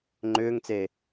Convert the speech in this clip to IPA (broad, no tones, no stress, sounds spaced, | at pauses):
ŋ͡ǃ ʏː ŋ t͡s eː